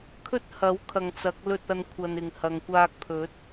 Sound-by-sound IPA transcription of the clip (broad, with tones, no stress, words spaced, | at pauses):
kʰɵ˥t̚hɐ˨˥wkʰɐ˨ŋ t͡sɐ˨˥k̚lɵ˧t̚ɐ˧n kʷʰɐ˧nɪ˨ŋ hɐ˨ŋkʷaː˧k̚pʰɵ˨˥t̚